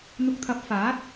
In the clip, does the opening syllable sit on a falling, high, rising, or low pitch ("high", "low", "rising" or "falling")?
low